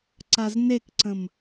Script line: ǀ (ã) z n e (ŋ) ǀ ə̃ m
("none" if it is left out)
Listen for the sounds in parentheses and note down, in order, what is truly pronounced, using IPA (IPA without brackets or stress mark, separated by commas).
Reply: a, k